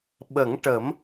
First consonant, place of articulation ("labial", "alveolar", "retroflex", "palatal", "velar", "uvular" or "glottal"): labial